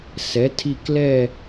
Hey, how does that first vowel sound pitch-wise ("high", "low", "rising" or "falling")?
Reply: rising